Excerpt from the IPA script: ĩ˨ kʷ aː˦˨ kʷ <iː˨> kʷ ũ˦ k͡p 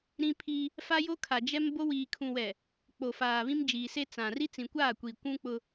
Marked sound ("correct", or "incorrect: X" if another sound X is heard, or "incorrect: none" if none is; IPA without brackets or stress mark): correct